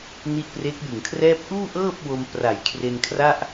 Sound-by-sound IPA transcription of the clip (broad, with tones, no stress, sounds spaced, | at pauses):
n i˦˥ ʔ p r e˦˥ k̚ j ɯ˨˩ ŋ kʰ r ɛː˥˩ p̚ ʔ uː˥˩ ʔ ɤː˥˩ p̚ w o˧ m p r a˨˩ j kʰ r e˧ n kʰ r a˥˩ ʔ